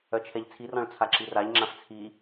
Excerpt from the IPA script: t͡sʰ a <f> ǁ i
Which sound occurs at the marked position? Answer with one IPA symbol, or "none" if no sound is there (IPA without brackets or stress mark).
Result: none